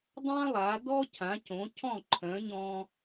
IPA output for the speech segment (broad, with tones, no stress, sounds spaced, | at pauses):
dˤ ã˥ lˠ a˩˥ d ɔ˥ cʰ ã˩˥ c õ˩˥ cʰ ɔ̃˥˩ ǃʰ œ̃˩˥ ɲ ɔ̃˧